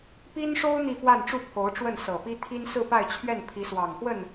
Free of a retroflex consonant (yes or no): no